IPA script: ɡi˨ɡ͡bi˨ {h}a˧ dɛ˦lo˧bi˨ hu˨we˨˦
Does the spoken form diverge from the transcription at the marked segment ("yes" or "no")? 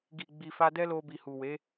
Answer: yes